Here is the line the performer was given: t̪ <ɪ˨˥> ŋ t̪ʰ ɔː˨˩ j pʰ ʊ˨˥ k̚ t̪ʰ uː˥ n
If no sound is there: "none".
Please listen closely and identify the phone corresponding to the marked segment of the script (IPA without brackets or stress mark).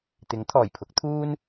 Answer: ɪ˨˥